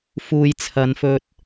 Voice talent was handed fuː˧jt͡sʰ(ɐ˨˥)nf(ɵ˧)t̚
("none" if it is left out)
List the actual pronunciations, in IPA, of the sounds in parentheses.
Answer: ɐ˨˧, ɵ˧

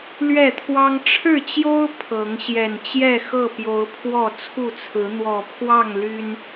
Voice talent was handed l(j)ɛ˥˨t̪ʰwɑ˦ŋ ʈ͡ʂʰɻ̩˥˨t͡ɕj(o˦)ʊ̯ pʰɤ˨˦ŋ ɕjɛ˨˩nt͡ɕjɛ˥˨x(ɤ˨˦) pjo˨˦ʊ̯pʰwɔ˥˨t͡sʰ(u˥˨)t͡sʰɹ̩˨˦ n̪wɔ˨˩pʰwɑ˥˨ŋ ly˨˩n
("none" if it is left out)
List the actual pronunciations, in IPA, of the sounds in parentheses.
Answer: ɥ, o˦, ɤ˥˨, u˥˨

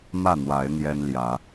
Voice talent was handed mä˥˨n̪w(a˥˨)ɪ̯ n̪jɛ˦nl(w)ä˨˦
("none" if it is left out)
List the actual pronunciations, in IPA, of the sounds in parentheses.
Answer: a˨˦, j

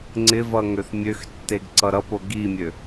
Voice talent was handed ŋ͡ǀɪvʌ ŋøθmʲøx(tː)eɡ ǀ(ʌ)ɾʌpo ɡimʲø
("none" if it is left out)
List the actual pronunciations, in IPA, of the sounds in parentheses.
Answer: tː, ʌ

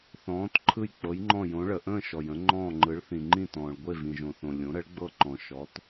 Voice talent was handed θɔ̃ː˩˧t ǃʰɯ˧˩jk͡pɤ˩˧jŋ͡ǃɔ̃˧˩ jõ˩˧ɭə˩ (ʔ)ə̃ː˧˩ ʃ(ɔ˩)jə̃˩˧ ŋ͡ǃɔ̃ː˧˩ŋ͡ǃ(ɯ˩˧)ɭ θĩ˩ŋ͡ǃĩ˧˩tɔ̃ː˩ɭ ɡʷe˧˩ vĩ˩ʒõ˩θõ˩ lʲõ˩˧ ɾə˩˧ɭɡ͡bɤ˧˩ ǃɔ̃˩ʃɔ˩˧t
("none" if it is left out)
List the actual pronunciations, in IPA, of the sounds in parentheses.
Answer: ʔ, ɔ˩, ɯ˩˧

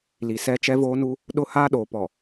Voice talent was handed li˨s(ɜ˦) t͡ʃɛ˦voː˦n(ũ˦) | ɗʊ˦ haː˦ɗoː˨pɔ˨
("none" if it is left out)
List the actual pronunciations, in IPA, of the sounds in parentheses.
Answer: ɛ˦, u˦

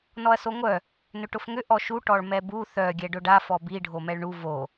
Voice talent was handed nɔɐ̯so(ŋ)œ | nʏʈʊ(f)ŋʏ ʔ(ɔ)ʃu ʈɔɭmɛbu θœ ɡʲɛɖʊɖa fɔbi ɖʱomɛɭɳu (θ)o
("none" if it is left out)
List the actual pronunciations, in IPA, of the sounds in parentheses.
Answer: ŋʷ, f, ɔ, v

